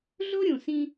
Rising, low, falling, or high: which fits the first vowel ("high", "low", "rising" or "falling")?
high